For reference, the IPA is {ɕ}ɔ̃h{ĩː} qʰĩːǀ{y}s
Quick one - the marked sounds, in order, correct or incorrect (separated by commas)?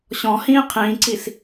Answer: correct, correct, incorrect